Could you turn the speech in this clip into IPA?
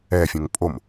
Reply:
ɛfʲõŋ pʼom

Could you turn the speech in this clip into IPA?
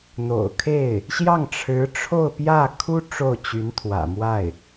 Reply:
n̪o̰˨˩ʊ̯kʰe˥˩ɪ̯ | ɕjɑ˥˩ŋʈ͡ʂʰɻ̩˧˥ ʈ͡ʂʰo˥˧ʊ̯pjä˥˩ kʰu˥ ʈ͡ʂo˥˩ʊ̯t͡ɕy˧˥nt̪ʰwä̰˨˩mwa˥˩ɪ̯

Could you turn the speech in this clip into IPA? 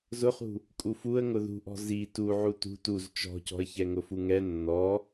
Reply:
zʊχṳ | kʼufuə̯ ŋʊðṳʔɔ̤ zi tuʕu tṳ tuz t͡ʃɔ̤cɔ̤ə̯ çɛŋʊfuŋɛ nːɔ

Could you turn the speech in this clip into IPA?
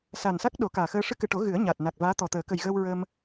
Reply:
sa˨˩nsa˦˥k̚ ɗo˨˩˦kaː˨˩xəː˧ ʂɨ˧kɨ˨˩ʈo˨˩˦ ɣɨ˨˩˦ə̯ɲa˨˩t̚na˨˩k̚ vaː˧˥t̪ɔ˨˩t̪əː˨˩˦ kə˨˩jɣəː˧wɹə˧m

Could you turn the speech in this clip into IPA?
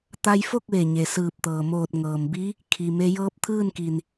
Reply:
t̪a˧jfo˥˨k̚ ʋe˧˩ɲe˩sɯː˧˩p̚t̪ɤː˩ moː˧˩t̚ŋɤː˩mbi˧˥ | kʰi˩ me˧jɤː˧˥p̚t̪ʰɯː˥˨nki˩n

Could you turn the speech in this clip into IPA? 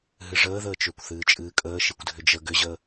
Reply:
ɦɨʐəːðəːt͡ʃʏːkʷ θɨːt͡ʃʼɨːkʼəː ʃikʷdʱʏd͡ʒə ɡʏʑəː

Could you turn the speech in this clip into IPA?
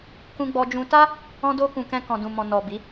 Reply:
kũ˧ɡ͡bɔ˧d͡ʒũ˧ ta˦ | ɔ̃˧do˧kũ˨ kɛ̃˧kɔ̃˨dũ˨mɔ̃˨ nɔ˨ bi˨˦

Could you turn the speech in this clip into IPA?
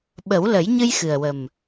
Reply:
ɓə˨˩˦wlə˨˩˦jɲɨ˧j xɨ˨˩ə̯wə˨˩m

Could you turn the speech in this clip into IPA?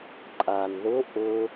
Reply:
ǃʼan ðʊ ʔʊ

